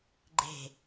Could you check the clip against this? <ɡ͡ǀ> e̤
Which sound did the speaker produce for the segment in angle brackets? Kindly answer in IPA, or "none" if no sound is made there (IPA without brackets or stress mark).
ɡ͡ǃ